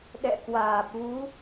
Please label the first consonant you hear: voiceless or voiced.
voiced